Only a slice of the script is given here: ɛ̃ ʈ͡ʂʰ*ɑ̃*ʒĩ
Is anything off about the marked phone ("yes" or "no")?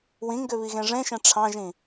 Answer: no